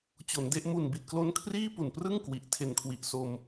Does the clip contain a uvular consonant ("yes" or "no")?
no